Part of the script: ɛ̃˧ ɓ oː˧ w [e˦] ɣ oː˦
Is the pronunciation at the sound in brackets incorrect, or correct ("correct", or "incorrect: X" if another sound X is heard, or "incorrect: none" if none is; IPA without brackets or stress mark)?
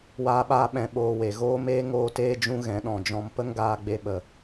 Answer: incorrect: e˨